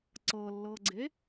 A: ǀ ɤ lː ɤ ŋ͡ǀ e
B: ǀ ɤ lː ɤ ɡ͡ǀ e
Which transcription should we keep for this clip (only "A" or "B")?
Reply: B